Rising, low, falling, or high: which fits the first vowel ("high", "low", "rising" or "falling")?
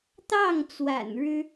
falling